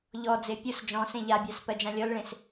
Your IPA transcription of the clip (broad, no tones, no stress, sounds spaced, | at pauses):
ʎ ɔ d͡z e pʲ ʊ s d͡ʒ ɔ̃ s ẽ ʎ a bʲ a s p ɜ d͡ʒ ã lʲ ɔ l ɭ ẽ s